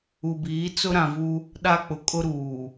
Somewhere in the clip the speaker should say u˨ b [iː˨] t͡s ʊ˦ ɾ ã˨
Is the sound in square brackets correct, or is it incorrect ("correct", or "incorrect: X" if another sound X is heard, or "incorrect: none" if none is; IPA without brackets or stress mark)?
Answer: incorrect: iː˨˦